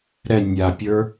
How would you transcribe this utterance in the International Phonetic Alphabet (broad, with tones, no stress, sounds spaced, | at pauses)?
ɾ ɛ˨ nʲ a˨ pʲ ə˞˧